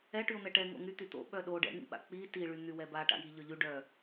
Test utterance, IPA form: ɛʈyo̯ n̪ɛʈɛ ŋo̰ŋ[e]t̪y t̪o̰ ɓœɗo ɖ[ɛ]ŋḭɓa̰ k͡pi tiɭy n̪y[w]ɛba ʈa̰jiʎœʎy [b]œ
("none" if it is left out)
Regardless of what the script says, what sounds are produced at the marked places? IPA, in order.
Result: y, ɛ̰, w, ɖ

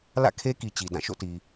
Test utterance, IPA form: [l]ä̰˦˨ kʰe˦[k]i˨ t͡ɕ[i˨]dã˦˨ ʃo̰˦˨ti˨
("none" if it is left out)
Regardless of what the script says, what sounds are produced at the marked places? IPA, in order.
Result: l, k, i˨

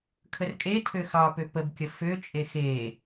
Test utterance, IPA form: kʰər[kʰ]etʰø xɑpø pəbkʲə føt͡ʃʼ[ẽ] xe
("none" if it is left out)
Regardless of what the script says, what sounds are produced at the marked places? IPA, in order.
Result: kʼ, e

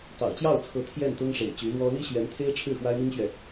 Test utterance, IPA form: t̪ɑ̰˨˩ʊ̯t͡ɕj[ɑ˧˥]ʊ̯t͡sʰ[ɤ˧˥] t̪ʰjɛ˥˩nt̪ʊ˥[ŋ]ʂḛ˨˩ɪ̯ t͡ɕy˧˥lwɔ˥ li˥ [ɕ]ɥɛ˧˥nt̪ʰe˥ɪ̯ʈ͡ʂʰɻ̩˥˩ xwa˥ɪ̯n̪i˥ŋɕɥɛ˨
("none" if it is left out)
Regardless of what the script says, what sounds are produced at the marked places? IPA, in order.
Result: ɑ˥˩, ɤ˧˥, ŋ, ɕ

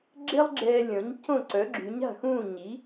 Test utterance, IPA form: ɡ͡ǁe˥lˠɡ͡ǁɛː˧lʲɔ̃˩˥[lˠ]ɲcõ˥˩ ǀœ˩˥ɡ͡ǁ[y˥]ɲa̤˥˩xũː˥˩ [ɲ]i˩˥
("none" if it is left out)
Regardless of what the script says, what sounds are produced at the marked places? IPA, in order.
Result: none, y˩˥, ɲ

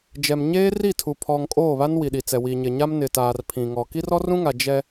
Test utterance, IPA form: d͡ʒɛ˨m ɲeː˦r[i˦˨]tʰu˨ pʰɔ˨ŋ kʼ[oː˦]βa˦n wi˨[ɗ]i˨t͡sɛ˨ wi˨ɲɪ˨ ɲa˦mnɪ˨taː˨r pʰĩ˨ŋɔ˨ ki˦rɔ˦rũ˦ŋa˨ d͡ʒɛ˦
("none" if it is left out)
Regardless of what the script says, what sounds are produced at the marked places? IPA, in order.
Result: i˦˨, oː˦˨, ɗ

